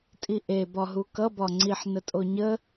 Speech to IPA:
tʼ i ʔ e b ɒ ɦ u k ʌ b ɒ ŋ͡ǀ i ħ n ə tʼ o ɲ ə

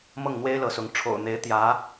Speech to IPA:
m ɤ˥˩ ŋ n̪ w e˥ ɪ̯ l ɤ˧˥ s ʊ˧˥ ŋ ʈ͡ʂʰ o̰˨˩ ʊ̯ n̪ e˧˥ ɪ̯ t̪ j ä˧˥

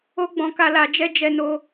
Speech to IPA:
o˦ ɡ͡b ɔ̃˧ k a˧ l a˧ d͡ʒ ɛ˦ d͡ʒ ɛ˦ n o˦

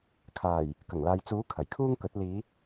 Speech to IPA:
kʰ aː˨˩ j | k ɐ˨˩ ŋ l aː˨ j t͡s uː˨˥ kʰ ɐ˨˩ j kʰ uː˥ ŋ k ɵ˨˥ t̚ l iː˨˧

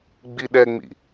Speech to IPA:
ɡ͡b i ɗ ɛ ŋ͡m ḭ

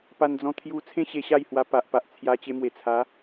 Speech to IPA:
p a˧ n d͡z ɔ̃˧ t̪ʰ j u˧ t͡sʰ ẽ˦ ɕ e˧ ɕ a˥˧ j h w a˧ p a˨ ʔ p a˨ ʔ t͡sʰ j a˧ t͡ɕ e˧ m w e˨˩ t͡sʰ a˨˦

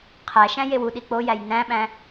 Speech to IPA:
qʰ æ ʃ æ̃ j e w u ɗ i k͡p o j æ j n æ̃ ɓ æ̃

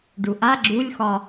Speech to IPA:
ɖ u ʔ a ɡ͡ǁ u lʲ x ɒ

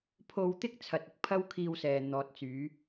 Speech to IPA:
pʰ o˧ w t̪ ɪ˥ k̚ t͡sʰ ɐ˨ t̚ ɪ˨ k̚ pʰ ɐ˥ w kʰ iː˧ w s ɛː˨ n̪ ɔː˨ t̚ t͡s yː˨˧

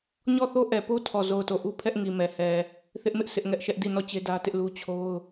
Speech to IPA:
ɲ ɔ˦˨ θ o˦ ʔ ɛ˨ p o˦ tʰ ɔ˦˨ z o˦˨ ʊ̯ t o˦˨ ʔ u˦ pʰ ɛ˦ ʔ ŋ i˨ m ɛ˨ h ɛ˨ | θ ɪ˦ ʔ m ɪ˦ ʔ s ɪ˦ ʔ ŋ ɛ˦ ʔ ʃ ɛ˦ ʔ d i˦˨ n ɔ˦˨ t͡ɕ e˦ d ä˦ t ɪ˦ ʔ l u˦ t͡ɕʰ o˦ ʊ̯

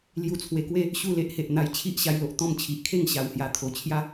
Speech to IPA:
l j u˧ t͡sʰ w e˧ k w e˥˧ | ɕ u˥˧ l e˦ ʔ h e˨ ʔ n̪ a˧ j t͡ɕʰ i˦ ʔ ɕ a˧ j l o˨ ʔ t̪ ɔ̃˥˧ m t͡ɕʰ i˨ ʔ kʰ e˥˧ ŋ ɕ a˨˩ w h j a˨˩ t̪ʰ o˨˩ t͡ɕʰ j a˦

